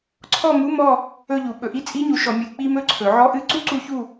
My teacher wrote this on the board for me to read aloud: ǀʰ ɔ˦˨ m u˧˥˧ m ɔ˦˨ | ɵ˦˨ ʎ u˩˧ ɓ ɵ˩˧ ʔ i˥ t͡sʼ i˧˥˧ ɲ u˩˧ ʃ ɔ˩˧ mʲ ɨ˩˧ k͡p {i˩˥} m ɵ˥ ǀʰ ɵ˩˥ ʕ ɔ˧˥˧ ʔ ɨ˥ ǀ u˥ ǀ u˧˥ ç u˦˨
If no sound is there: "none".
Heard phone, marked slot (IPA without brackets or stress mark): i˥